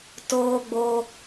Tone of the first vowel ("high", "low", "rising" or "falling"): high